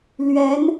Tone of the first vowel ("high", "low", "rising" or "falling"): rising